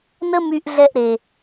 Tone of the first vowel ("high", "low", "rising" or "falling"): high